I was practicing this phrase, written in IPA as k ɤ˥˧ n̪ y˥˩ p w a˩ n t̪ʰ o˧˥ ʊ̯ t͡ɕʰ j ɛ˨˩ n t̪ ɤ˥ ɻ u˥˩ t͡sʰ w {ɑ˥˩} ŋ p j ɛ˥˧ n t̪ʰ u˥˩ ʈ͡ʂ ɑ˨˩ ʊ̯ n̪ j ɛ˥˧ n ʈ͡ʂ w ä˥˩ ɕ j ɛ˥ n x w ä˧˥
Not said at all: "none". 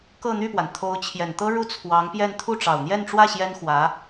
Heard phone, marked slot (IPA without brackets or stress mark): ɑ˧˥